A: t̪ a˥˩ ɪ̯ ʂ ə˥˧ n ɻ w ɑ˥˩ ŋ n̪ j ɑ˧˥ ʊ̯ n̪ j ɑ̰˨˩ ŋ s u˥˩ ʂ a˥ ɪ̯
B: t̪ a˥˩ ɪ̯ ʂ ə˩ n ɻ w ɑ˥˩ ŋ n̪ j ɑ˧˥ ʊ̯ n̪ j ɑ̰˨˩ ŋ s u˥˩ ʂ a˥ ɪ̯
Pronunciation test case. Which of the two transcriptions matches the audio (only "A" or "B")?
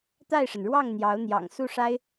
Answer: B